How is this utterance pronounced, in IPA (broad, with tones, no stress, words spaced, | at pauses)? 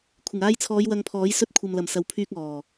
kʷʰɪ˨˩ŋaː˧jt͡sʰɔː˨˧j wɐ˧ŋpʰɔː˨˥j sɵ˧t̚kʷʰɐ˨mlɐ˨˩m sɐ˨wpʰyː˧k̚ ɔː˨˩